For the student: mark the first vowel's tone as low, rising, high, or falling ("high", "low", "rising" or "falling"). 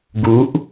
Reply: rising